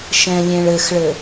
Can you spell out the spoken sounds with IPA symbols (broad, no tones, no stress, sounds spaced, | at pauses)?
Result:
ʃ ɛ̃ lʲ ẽ ɭ ɘ x ɭ ɘ